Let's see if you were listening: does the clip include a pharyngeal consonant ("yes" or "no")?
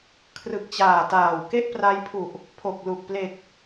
no